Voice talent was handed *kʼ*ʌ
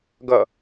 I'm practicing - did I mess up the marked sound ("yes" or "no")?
yes